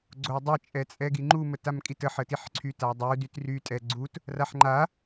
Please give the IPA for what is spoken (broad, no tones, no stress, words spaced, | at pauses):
ɡ͡ǀodˤɛ t͡ʃʼɛt͡sʼɛɡiŋ͡ǃu mətamkʼitə ħətiħǀʰy tadˤu dytry tʼɛɡ͡ǀut | raħŋ͡ǃa